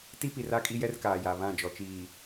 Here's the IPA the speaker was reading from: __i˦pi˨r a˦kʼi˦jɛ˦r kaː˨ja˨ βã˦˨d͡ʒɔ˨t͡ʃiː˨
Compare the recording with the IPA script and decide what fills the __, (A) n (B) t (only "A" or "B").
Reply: B